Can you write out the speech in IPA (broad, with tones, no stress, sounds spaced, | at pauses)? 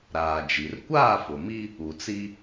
ɾ aː˨ d͡ʒ i˨ r kʷ aː˦˨ f ʊ˨ m i˦ | u˨ t͡s i˦